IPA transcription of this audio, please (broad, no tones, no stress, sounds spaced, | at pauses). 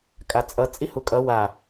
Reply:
kʼ a t͡sʼ ʌ t͡sʼ i h u kʼ ʌ w a